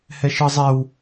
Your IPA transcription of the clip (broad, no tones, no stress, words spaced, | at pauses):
hɛʃɯzˤɛw